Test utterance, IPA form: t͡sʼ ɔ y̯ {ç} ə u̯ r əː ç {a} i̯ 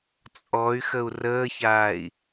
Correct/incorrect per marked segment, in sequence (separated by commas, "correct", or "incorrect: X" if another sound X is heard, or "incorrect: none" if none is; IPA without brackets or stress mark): incorrect: x, incorrect: aː